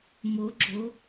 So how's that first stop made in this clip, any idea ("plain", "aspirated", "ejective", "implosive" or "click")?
click